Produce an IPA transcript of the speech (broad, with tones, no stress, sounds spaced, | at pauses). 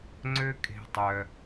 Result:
ŋ͡ǀ ø˦ kʼ e̤˧ tˤ œ˧